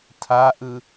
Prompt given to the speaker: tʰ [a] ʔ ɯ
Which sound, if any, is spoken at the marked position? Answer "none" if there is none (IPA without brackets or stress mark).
a